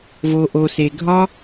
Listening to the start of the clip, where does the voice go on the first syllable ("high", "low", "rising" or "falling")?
low